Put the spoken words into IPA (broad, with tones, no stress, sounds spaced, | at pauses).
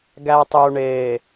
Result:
ɡ æ˨ tˤ ø˨ u̯ ɳ eː˨